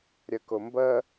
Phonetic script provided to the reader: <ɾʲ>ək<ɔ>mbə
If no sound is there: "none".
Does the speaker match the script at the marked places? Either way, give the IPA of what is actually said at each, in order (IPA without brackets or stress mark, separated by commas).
ɾʲ, ʊ